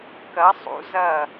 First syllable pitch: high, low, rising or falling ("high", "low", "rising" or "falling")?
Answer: rising